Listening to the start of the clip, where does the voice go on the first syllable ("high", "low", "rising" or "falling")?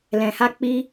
low